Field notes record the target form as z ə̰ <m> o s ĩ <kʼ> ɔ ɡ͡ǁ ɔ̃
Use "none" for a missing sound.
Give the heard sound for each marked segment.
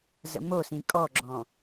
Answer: m, kʼ

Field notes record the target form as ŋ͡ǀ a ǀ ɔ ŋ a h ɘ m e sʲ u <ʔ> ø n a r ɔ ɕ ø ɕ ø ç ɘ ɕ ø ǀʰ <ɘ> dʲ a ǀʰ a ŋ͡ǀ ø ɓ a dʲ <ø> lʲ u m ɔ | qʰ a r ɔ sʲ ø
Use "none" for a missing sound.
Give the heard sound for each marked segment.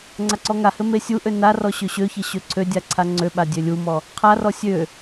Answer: ʔ, ø, ø

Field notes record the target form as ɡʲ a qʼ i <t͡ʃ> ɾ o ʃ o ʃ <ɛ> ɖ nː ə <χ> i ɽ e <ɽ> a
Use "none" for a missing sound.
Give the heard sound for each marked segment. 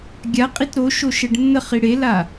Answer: t, ɛ, χ, l

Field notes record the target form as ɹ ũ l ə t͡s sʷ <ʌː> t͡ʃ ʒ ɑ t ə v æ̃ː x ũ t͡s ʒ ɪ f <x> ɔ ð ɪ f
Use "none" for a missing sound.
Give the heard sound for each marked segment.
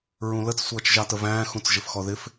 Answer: ʌː, x

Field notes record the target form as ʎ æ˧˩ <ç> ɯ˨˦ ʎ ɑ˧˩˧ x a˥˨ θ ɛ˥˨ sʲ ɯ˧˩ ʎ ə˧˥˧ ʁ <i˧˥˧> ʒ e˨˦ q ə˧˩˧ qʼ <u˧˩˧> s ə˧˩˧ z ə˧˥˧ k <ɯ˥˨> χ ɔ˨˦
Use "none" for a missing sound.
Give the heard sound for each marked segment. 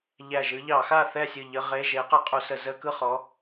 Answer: ʒ, e˧˥˧, u˧˩˧, ɯ˥˨

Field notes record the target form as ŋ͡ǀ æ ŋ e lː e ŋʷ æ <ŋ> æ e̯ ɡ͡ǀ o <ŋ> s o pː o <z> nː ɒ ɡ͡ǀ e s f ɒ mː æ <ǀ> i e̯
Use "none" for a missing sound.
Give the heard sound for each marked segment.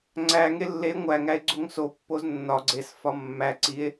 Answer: ŋ, ŋ, z, ǀ

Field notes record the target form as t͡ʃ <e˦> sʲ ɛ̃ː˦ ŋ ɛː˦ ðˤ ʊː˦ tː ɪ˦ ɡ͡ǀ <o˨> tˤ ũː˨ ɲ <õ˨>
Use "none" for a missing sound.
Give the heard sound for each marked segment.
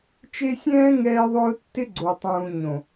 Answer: e˦, o˨, õ˨

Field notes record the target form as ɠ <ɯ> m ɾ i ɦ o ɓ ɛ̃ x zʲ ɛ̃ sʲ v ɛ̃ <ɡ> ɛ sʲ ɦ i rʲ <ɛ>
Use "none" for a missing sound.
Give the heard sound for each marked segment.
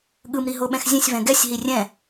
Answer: ɯ, ɡ, ɛ̃

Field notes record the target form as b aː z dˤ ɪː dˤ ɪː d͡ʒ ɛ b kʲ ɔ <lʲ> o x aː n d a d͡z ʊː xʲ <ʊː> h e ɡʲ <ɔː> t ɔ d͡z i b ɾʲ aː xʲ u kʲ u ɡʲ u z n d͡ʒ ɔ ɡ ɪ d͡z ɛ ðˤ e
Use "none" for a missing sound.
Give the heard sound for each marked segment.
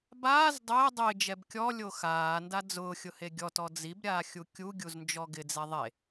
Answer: lʲ, ʊ, ɔ

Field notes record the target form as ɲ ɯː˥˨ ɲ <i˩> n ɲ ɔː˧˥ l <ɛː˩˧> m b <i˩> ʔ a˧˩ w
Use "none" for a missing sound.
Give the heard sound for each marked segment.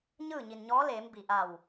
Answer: i˩, eː˩˧, i˩

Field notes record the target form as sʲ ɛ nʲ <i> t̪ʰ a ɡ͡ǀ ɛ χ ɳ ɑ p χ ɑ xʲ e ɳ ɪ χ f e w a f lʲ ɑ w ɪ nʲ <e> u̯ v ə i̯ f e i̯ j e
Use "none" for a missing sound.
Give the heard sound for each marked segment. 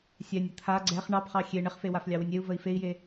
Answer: ɪ, e

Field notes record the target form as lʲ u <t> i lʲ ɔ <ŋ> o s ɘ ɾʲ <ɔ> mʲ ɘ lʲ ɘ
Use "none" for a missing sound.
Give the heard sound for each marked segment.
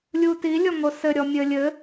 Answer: t, ŋ, ɔ

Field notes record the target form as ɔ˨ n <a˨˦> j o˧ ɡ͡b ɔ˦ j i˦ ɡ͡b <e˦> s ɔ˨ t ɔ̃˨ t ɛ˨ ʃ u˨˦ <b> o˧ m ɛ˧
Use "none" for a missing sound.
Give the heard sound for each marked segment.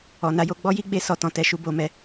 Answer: a˨˦, e˧, b

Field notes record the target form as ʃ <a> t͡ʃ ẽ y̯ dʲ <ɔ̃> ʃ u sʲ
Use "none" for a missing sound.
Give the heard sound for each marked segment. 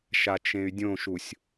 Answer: a, õ

